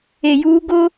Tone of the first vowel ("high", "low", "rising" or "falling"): low